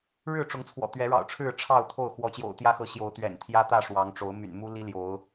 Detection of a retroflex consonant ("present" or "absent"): present